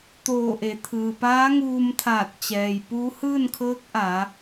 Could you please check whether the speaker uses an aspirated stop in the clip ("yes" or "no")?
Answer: yes